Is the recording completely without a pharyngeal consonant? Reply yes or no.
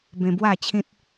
yes